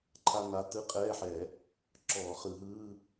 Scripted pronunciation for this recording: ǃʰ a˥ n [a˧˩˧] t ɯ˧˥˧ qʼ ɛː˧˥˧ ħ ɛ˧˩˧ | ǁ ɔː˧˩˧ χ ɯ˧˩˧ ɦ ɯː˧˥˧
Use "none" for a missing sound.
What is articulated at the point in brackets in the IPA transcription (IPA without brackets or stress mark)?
a˧˥˧